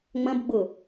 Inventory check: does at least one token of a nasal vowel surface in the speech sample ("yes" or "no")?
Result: yes